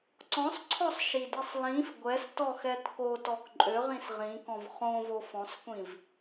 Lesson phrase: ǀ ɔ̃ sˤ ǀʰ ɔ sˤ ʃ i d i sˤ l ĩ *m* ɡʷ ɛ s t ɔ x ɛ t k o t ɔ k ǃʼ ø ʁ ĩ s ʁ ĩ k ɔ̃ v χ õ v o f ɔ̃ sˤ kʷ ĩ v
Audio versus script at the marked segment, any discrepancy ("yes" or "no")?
yes